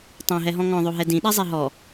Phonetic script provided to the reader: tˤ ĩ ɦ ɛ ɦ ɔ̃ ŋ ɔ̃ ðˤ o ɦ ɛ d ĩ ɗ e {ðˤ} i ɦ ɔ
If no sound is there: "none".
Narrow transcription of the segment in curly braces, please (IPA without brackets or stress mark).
zˤ